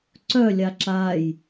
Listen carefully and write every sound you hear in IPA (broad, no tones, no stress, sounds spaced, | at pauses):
ǀ œ lʲ a ǁ a j